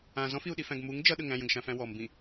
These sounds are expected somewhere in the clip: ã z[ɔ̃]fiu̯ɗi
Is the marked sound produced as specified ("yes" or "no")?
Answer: yes